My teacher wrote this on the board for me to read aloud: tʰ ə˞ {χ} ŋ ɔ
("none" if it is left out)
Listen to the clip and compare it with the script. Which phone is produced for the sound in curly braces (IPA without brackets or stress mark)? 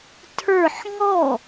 ħ